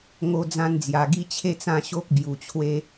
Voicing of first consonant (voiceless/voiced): voiced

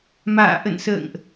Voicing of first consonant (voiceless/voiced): voiced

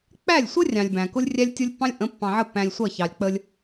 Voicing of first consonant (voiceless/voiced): voiceless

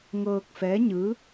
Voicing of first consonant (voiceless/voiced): voiced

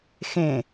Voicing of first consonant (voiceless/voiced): voiceless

